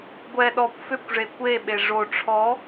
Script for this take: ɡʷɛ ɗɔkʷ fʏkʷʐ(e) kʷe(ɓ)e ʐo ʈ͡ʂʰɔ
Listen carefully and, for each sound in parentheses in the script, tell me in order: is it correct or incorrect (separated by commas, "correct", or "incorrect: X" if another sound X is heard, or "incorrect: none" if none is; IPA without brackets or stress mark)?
correct, correct